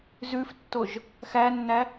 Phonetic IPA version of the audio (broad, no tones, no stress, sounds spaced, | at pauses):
z ʉ f tː o ʒ | x æ nː æ